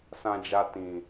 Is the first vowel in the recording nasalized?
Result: yes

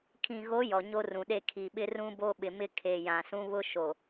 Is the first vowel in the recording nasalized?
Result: yes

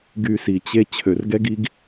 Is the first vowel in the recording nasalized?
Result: no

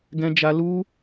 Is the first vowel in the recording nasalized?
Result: yes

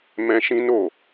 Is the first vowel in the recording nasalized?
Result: yes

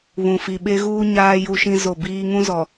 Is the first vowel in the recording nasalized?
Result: yes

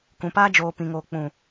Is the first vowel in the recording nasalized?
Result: yes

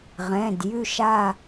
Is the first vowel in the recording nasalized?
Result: yes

